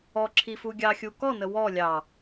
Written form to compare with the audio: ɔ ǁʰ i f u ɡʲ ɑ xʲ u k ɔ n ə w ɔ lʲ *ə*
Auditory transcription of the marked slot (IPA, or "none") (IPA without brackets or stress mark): ɑ